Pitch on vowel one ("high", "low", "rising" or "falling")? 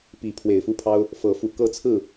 rising